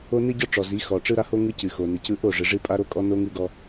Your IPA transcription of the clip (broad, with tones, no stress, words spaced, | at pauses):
o˦nɨ˦ ɟɔ˦ʈ͡ʂɔ˨zi˨˦ xɔ˨ʈ͡ʂɯ˦ɾa˦ ho˦ ŋɯ˦cɨ˨ xo˨nɯ˨cɯ˦ ʔo˦˨ʐɯ˨ ʐɨ˦ pʼa˦ɾo˦kʼɔ˦no˦ ŋɯ˦ɡɔ˦